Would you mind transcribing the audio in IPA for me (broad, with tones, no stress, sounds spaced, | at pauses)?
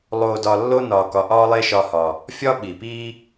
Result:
lˠ oː˧ d ɒ˧ lː o˦ n ɒː˧ k ɒ˧ ʔ ɒː˦ lˠ e˦ ʃ ɒ˧ h ɒ˨ | fʲ ɒ˦ ɓ i˨ p iː˦